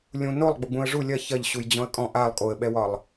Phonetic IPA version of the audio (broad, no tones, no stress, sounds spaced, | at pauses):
lʲ ũ n o lˠ ɡ͡b o ɡ͡b ũ ə̯ ʐ u lʲ ɐ ç ɐ ʎ ɕ u j d͡ʑ ɔ̃ ə̯ kʼ ɔ̃ ʔ a lˠ kʼ o ə̯ ɓ ɛ w ɒ lˠ